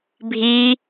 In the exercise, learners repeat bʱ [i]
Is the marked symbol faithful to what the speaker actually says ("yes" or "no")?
yes